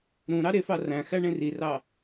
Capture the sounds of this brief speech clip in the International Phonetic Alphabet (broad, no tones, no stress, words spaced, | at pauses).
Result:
ɾũɾɑ ɾefɑ ræ̃xæɳẽ rirɑ